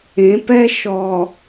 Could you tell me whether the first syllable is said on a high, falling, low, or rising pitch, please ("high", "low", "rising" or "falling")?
rising